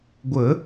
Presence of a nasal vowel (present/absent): absent